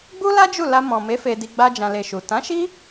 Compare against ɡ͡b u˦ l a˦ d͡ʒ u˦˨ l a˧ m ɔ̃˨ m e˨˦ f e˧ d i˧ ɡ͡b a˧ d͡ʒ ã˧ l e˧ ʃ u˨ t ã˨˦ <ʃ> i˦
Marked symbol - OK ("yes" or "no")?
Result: yes